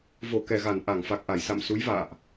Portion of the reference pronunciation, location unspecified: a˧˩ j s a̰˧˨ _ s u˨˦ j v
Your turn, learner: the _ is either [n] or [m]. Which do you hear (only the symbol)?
m